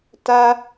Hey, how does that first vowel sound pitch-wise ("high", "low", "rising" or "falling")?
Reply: high